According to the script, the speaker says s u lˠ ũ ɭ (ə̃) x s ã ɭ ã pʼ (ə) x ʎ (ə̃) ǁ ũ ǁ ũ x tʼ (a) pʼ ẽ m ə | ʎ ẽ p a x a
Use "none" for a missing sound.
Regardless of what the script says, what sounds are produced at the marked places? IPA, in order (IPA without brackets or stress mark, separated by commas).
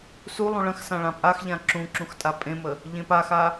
ə̃, a, ã, a